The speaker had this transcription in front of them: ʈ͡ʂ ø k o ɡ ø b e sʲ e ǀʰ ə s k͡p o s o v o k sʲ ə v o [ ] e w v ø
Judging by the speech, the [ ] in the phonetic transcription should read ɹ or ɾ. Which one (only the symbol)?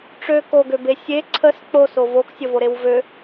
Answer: ɾ